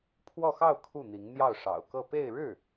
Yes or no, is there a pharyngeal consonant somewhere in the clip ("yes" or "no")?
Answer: no